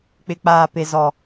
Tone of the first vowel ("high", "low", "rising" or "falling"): high